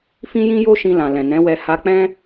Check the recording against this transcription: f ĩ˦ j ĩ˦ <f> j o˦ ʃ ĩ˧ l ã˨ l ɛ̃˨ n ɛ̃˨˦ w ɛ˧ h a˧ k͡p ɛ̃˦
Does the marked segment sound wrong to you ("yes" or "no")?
yes